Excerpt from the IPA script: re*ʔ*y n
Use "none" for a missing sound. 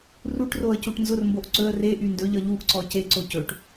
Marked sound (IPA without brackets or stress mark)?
ʔ